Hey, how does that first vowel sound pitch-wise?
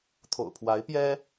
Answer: low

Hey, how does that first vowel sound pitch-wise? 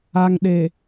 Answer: low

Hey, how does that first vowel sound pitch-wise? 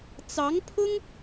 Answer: rising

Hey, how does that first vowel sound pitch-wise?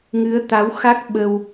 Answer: rising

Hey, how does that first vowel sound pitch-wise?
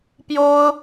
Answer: high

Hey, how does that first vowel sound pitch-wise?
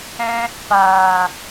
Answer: high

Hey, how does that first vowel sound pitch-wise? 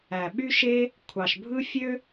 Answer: low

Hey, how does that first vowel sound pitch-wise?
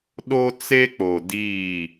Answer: high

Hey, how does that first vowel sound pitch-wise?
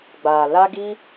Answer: low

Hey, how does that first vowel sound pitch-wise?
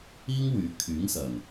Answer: high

